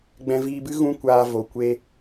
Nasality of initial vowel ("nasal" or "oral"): nasal